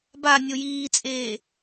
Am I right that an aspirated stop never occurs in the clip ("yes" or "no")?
yes